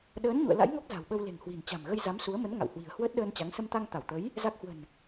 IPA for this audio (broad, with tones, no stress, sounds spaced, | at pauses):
ɗ əː˨˦ n ɲ ṵ˧˨ ə̯ l a̰˧˥ j ŋ ɔ˦˥ k̚ z a̤˨˩ w ɓ ə˧ w l e̤˨˩ ŋ h w i̤˨˩ n t͡ɕ a̤˨˩ m ɣ ə˧ j z a˨˦ m s u˨˦ ə̯ m ə˨˦ n ŋ a̰˧˨ w h w i̤˨˩ ə̯ h w əː˦˥ t̚ ɗ əː˧ n t͡ɕ a˨˦ ŋ s ə˧ m t̪ a˧ ŋ t̪ a˧˩ w t̪ ə˨˦ j | z a˦˥ k̚ h w ə̤˨˩ n